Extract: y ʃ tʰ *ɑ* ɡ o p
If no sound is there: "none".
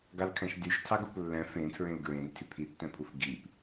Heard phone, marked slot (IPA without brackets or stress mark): ɑ